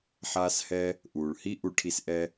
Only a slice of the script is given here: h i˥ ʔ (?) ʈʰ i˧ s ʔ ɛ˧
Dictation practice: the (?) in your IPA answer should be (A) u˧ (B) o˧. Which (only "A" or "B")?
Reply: A